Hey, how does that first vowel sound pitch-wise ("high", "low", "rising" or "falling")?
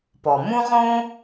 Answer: low